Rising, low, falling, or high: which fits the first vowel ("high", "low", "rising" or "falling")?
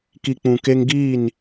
low